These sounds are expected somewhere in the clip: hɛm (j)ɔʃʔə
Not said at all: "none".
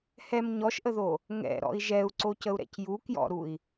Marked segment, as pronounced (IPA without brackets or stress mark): ɲ